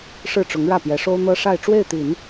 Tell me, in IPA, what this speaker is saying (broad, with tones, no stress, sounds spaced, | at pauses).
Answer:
ʂ ɻ̩˥˩ ʈ͡ʂ ʊ˧˥ ŋ ɻ ä˥˩ p j ɛ˧˥ ʂ o˥ ʊ̯ n̪ ɤ˥ ʂ a˥˧ ɪ̯ ʈ͡ʂ w e˥˩ ɪ̯ t̪ i˨˩˦ n